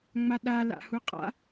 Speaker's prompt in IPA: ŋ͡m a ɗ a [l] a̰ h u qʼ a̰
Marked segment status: correct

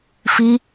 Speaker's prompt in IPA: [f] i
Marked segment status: correct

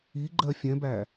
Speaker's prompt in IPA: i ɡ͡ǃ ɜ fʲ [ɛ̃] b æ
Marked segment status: correct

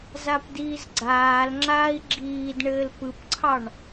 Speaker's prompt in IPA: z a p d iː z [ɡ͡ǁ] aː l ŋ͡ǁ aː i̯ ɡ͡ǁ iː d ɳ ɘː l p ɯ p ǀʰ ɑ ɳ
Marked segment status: incorrect: ɡ͡ǀ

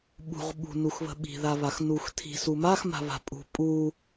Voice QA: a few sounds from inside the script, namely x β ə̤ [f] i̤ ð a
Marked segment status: incorrect: ɓ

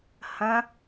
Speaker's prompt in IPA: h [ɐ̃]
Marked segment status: correct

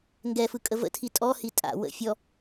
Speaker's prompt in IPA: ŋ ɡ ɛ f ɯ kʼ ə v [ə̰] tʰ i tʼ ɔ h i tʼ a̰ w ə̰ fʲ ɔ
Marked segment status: correct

